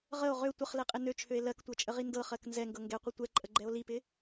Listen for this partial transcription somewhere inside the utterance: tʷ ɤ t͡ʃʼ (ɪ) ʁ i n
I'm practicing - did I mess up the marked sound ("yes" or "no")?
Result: yes